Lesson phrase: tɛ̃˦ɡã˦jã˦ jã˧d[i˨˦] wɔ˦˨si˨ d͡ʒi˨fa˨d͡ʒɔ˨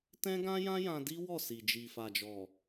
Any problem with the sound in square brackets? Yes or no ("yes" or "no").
yes